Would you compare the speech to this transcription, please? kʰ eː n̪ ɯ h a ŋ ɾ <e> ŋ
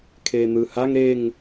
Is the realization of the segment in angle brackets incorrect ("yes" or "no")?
no